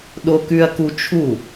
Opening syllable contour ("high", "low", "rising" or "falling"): high